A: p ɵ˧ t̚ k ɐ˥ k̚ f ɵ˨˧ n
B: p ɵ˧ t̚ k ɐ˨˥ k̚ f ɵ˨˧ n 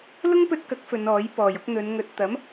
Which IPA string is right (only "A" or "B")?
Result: B